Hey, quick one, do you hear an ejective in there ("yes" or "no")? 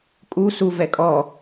yes